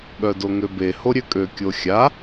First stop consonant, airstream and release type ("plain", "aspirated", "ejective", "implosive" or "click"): implosive